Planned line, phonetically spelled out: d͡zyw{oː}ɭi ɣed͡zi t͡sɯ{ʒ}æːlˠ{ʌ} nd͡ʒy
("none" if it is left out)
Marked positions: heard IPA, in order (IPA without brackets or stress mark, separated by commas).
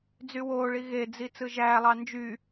oː, ʒ, ɑ